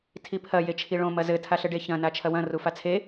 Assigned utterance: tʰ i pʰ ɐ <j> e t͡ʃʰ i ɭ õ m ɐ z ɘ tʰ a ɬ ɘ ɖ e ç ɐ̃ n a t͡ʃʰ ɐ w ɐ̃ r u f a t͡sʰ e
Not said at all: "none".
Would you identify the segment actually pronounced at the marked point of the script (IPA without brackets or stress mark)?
j